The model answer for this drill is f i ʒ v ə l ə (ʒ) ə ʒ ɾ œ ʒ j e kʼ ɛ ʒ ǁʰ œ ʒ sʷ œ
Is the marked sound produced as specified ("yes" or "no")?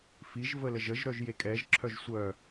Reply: yes